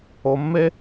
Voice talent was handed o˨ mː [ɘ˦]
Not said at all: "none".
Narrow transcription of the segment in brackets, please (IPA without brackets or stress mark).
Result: e˦